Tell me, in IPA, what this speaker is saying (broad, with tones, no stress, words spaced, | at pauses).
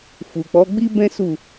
fu˨k͡pɔ˨˦ɡ͡bi˦bɛ̃˦ su˦˨